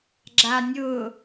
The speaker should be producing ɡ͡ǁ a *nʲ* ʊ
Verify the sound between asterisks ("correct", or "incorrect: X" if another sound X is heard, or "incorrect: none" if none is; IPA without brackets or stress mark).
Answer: correct